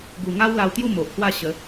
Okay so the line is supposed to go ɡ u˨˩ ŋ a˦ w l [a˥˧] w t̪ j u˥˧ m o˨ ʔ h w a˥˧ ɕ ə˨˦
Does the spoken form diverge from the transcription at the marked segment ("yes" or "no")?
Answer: yes